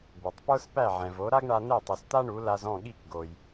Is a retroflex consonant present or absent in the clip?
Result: present